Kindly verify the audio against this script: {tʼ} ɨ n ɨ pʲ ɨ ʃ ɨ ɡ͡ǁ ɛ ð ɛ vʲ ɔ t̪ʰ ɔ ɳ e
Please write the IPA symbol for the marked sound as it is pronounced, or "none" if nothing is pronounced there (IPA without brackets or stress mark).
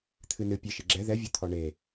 t̪ʰ